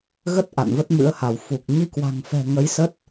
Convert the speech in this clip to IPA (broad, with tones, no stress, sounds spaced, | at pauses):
ɣ ə˦˥ t̚ ʔ a̰˧˨ n v ə˦˥ t̚ m ɨ̰˧˥ ə̯ h a˧˩ w f u˨˩ k̚ ɲ i˧ k w a̤˨˩ ŋ f ɛ̤˨˩ ŋ ə˨˦ j s ə˦˥ t̚